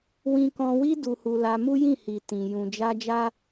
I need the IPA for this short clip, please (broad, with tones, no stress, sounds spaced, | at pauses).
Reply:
w ĩ˧ k ɔ̃˧ w i˦ d u˧ h u˧ l a˧ m u˦ j ĩ˦˨ h i˨ t ĩ˨ j ũ˨ d͡ʒ a˧ d͡ʒ a˦